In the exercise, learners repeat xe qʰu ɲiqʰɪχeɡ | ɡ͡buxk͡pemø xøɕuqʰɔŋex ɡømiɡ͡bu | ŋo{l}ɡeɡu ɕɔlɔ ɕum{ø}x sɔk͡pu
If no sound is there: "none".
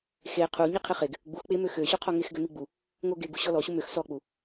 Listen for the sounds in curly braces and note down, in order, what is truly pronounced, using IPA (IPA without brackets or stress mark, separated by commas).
none, ø